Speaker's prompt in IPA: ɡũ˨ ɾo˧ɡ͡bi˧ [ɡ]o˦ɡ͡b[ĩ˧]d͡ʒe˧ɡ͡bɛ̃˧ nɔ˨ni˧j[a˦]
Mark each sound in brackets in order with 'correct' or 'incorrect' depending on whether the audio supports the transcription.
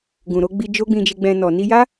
incorrect: d͡ʒ, correct, correct

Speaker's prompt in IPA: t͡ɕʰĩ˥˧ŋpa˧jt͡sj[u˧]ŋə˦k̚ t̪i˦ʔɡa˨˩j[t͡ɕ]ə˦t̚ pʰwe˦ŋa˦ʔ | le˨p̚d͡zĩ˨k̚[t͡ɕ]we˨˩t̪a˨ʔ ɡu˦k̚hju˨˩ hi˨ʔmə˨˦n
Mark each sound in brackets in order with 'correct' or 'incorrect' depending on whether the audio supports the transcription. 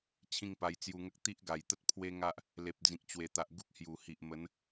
correct, incorrect: t̪, correct

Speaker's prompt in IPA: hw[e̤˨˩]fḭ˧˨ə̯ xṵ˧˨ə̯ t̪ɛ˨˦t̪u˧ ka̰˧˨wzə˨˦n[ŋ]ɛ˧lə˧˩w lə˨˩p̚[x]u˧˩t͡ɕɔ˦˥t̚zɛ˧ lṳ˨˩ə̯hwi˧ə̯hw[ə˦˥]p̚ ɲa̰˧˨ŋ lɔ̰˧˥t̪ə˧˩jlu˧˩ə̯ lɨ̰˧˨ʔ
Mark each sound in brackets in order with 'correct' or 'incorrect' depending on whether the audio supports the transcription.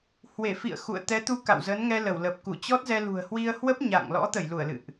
incorrect: e˧˩, correct, incorrect: k, correct

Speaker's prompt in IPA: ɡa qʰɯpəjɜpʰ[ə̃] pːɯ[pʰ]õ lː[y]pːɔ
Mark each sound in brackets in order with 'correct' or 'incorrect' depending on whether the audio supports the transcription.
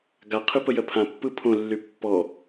incorrect: ã, correct, correct

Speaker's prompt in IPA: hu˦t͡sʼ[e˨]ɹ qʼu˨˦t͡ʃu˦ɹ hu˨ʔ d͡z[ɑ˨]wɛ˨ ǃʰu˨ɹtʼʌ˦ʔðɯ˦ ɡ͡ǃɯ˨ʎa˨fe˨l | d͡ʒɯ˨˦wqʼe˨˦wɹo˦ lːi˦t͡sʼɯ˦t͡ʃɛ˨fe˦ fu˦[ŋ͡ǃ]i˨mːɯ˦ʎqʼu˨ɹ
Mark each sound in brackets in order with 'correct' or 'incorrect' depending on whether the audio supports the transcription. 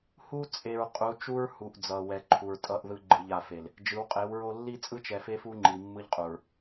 correct, incorrect: ʌ˨, correct

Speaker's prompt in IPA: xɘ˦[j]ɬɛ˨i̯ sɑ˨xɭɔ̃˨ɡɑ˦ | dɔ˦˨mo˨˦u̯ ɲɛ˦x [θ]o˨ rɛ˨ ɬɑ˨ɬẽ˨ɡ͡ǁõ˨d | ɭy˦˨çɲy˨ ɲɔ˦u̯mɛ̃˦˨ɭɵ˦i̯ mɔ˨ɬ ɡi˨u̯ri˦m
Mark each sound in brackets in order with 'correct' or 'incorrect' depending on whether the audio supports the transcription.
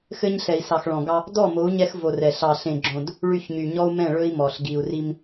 incorrect: ɲ, incorrect: v

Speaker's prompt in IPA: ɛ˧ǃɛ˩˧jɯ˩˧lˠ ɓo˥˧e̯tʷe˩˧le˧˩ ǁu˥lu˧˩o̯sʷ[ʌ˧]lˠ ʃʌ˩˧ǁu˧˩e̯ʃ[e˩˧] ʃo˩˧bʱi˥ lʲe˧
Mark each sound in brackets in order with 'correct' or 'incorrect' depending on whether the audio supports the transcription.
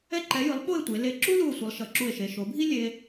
incorrect: ʌ˩˧, correct

